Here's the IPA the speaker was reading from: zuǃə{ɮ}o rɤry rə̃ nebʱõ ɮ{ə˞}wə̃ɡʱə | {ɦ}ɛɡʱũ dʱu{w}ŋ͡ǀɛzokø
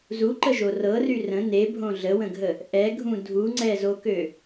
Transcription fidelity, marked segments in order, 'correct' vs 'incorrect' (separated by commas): incorrect, incorrect, incorrect, incorrect